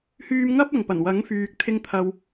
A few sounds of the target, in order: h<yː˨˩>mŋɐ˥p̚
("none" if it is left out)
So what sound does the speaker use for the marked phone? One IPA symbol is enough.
yː˧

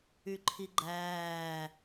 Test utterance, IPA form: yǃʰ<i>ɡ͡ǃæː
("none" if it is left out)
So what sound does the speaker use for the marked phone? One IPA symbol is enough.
i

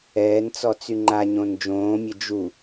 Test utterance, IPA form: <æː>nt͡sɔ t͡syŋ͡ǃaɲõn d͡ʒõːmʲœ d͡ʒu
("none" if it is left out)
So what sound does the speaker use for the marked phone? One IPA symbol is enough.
ɛː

